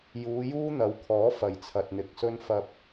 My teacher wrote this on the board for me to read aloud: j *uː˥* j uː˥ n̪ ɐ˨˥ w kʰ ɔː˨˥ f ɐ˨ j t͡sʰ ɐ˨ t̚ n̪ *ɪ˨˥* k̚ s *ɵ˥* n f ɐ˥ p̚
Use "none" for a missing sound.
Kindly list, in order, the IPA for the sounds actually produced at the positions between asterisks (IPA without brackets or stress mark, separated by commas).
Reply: uː˨˧, ɪ˨, ɵ˥